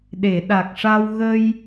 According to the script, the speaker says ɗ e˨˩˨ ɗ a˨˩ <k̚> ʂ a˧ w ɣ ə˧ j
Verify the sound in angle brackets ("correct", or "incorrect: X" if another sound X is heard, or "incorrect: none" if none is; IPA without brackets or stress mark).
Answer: correct